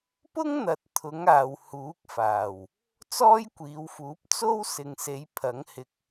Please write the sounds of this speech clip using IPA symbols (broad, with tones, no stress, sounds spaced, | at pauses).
p ʊ˥ ŋ n̪ ɐ˨ t̚ t̪ʰ ʊ˨˥ ŋ aː˨ w h uː˨˥ k̚ f aː˨˩ w | t͡s ɔː˥ j kʷ iː˨˧ w f uː˨˥ p̚ t͡s o˥ w s ɪ˨ ŋ s e˨˧ j pʰ ɐ˨˥ ŋ h ɪ˧ k̚